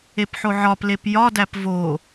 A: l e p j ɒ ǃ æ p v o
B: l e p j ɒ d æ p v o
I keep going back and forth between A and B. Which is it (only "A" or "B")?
B